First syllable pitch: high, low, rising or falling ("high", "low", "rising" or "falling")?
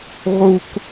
low